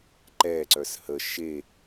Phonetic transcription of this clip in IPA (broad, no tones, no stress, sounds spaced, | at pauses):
ǃ ɛ ǀ œ s h ə ʃ e